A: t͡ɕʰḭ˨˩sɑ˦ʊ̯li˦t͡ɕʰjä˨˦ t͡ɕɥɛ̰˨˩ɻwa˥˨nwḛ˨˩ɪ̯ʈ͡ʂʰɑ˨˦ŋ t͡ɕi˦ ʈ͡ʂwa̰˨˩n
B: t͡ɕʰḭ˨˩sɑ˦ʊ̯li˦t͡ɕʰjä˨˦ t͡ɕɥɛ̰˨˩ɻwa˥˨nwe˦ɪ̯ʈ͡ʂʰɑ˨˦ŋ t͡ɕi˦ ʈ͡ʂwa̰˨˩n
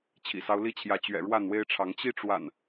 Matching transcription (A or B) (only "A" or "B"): B